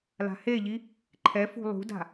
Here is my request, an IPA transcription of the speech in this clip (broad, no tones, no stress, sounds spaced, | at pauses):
l a̤ h e ʎ i | ǃʰ ɛ f ṳ lˠ ṳ d a̤